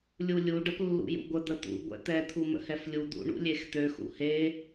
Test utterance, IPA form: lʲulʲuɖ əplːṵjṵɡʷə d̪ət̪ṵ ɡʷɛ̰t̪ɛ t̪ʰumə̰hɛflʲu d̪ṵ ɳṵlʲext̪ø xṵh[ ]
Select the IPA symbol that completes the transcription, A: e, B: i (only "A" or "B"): A